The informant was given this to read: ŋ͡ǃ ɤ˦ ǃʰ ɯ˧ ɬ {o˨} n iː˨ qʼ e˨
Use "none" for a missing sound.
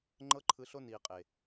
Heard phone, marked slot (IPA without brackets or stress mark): o˦